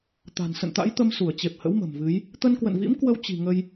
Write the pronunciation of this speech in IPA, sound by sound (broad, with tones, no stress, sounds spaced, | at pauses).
t̪ a̤˨˩ n s ə̰˧˨ n t̪ a̰˧˥ j t̪ ə˧ m s u˧˩ ə̯ t͡ɕ e˨˩ p̚ h ə̰˧˥ w m ə̤˨˩ m v ɨ˨˦ j | t̪ ə˧ n k w ə̰˧˨ n v ḭ˧˥ m k w ə˧ w t͡ɕ i̤˨˩ ŋ ə˧ j